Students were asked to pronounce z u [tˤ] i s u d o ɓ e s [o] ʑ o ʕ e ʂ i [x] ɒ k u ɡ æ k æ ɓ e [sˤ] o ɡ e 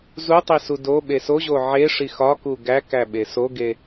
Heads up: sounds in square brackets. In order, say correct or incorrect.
correct, correct, correct, incorrect: s

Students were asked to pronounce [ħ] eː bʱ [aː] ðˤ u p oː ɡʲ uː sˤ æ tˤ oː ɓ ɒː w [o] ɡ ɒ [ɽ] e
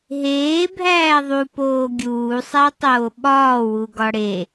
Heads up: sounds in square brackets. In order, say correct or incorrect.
incorrect: ɦ, incorrect: æː, incorrect: u, correct

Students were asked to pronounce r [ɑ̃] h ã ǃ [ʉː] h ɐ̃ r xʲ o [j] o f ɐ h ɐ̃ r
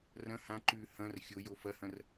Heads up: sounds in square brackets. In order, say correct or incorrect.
incorrect: ɐ̃, correct, correct

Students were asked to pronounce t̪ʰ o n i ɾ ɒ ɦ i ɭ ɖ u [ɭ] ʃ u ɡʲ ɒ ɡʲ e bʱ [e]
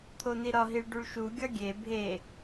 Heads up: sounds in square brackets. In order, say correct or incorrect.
correct, correct

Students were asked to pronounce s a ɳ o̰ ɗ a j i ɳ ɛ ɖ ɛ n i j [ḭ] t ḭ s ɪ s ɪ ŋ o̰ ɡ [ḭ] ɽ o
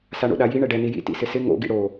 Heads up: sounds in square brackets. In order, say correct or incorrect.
correct, correct

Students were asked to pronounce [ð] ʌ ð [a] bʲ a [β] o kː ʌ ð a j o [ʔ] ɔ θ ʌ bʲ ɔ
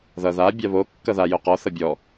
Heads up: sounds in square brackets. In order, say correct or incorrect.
correct, correct, correct, incorrect: q

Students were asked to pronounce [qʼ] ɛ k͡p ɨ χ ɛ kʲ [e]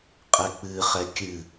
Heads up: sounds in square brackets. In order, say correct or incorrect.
correct, incorrect: ɨ

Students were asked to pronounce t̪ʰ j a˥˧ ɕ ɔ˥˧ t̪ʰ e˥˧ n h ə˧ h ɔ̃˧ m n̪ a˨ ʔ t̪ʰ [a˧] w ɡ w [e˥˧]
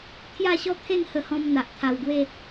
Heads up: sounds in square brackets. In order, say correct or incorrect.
correct, correct

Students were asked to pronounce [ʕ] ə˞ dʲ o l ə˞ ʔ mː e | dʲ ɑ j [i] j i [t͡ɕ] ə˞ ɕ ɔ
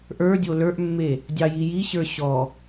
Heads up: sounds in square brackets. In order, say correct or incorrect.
incorrect: ʔ, correct, incorrect: ɕ

